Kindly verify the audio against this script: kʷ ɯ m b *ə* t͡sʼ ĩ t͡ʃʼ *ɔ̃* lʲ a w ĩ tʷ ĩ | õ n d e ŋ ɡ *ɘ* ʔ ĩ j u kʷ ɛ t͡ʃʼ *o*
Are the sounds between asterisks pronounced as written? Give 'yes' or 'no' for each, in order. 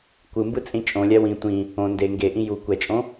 no, no, no, no

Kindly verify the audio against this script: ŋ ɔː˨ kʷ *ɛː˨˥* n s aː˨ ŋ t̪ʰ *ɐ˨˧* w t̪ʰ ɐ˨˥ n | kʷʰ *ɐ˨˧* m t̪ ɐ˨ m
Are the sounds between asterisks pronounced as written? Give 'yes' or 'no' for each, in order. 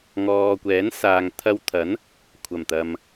yes, no, no

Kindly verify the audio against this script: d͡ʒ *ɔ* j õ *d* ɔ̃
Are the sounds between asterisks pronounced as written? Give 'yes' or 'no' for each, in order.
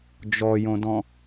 yes, yes

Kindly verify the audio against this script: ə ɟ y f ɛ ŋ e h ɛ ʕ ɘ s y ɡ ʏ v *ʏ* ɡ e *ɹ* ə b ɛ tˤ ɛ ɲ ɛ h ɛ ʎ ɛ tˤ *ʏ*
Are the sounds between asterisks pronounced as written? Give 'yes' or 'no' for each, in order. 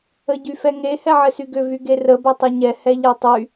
no, no, no

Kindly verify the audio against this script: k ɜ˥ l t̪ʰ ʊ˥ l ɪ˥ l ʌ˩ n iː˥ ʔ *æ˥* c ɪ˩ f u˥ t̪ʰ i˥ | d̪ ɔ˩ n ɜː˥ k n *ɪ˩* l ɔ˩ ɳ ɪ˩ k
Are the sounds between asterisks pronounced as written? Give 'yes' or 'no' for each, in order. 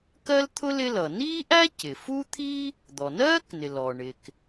yes, yes

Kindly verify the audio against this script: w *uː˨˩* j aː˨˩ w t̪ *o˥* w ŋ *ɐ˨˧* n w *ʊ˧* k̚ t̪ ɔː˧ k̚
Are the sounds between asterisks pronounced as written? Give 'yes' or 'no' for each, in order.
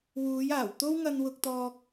no, yes, no, yes

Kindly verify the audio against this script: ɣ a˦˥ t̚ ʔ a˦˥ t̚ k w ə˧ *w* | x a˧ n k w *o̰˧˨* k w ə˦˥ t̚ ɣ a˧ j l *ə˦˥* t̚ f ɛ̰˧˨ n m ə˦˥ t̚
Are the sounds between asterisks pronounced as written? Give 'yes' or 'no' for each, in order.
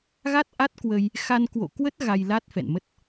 no, yes, no

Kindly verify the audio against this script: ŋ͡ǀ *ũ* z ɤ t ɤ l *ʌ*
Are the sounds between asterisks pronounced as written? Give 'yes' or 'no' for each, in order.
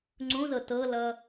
yes, yes

